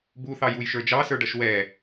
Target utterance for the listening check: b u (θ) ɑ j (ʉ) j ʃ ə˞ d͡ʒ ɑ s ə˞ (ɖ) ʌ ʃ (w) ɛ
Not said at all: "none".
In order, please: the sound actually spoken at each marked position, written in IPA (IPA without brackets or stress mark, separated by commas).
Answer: θ, u, ɖ, w